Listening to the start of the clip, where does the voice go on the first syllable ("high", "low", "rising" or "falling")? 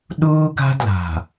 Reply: high